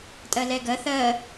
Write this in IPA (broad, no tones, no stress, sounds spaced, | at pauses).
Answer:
tʼ ɜ l ɛ ɡ ɜ θ ɜ